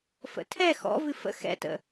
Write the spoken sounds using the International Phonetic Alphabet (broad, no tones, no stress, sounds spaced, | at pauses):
f ə̰ tʰ ɛ x ɔ̰ v ɨ f ə̰ x ɛ̰ t ə̰